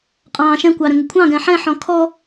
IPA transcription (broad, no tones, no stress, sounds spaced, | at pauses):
qʼ ɑ̃ ʃ ɛ̃ kʷ ɑ ɾ ə̃ ŋ ə kʷʰ ɑ̃ ɡ ɛ̃ ħ ɛ̃ ħ ɔ̃ kʰ ɔ